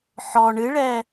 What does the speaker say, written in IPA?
ħ ɔ ɳ ɨ ɭ ɛ

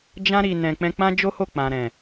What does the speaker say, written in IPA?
d͡ʒ ã˧ ɾ i˨ n ɛ̃˨ k͡p ɛ̃˧ k͡p ã˦ d͡ʒ o˦ h o˦˨ k͡p ã˨ ɾ ɛ̃˨

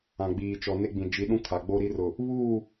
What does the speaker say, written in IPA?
ã˨ ɡ͡b iː˨ t͡ʃ ɔ˨ n e˦ ɡ͡b ĩ˨ d͡ʒ i˨˦ ɗ ũ˦ kʰ a˨ ɡ͡b o˦ ɾ i˦ r ʊ˨ | β uː˦˨

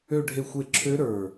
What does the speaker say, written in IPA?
ø˥˧ ɖʱ e˥˩ xʷ e˥˩ ǁʰ ø˦˥ ɾ ə˞˧˩

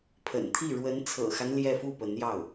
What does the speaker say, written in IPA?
pʰ ə̰˨˩ n t̪ʰ i˥˩ ɻ w ə˧˥ n t͡sʰ ɤ̰˨˩ x a˦ n l j ɛ˥˧ f u˥˩ p ə˧˥ n j ɑ˥˩ ʊ̯

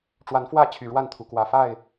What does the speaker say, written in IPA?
ʈ͡ʂ w a˨˦ n f w ä˥˨ t͡ɕʰ y˨˩ ɻ w a˥˨ n t̪ʰ u˨˦ k w ä˨˩ f a˥˨ ɪ̯

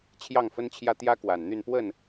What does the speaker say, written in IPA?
t͡ɕʰ j ɑ˥˨ ŋ f ə˦ n t͡ɕʰ j ä˦ t̪ j ä˦ k w a˨˩ n n̪ y˥˨ n p w ə˥˨ n

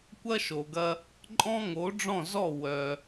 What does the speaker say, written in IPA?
kʷ ɐ˥ ʃ o˩ ɡ ɐ˧ | ǃʼ ɔ̃˥ ŋ o˩˥ ɖ͡ʐ ɔ̃˥˩ z ɔ˥˩ w œ˩

